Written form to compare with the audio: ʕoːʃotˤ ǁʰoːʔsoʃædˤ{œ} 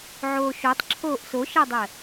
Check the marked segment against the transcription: incorrect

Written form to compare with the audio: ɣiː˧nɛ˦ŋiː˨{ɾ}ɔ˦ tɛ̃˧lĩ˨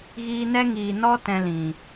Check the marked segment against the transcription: incorrect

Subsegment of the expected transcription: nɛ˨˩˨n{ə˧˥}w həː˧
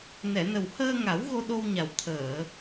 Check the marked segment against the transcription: incorrect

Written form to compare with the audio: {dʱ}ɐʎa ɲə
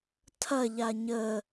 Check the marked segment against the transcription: incorrect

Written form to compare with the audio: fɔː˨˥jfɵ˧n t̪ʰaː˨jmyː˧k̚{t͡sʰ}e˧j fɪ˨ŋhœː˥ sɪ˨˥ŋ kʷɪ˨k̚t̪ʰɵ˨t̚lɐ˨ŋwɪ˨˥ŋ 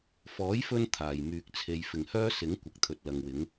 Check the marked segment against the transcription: correct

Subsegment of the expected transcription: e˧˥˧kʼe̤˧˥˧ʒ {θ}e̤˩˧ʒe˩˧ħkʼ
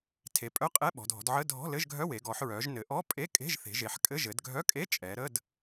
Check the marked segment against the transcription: correct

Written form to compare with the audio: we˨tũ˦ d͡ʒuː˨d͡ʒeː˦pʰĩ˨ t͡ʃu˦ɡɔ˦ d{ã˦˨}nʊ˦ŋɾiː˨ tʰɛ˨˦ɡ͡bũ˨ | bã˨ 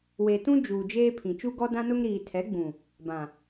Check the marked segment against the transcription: incorrect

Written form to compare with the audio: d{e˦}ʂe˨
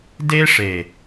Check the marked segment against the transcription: correct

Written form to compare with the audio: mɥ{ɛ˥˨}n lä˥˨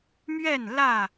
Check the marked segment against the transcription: correct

